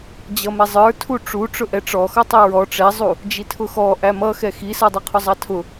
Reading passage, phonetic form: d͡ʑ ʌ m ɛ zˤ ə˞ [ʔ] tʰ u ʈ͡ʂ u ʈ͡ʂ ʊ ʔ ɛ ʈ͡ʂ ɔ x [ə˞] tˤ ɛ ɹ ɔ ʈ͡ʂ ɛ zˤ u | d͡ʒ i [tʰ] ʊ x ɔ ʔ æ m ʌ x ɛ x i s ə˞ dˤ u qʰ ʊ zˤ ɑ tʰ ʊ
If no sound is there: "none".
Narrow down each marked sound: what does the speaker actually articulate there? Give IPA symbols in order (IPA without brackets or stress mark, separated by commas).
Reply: none, ʌ, tʰ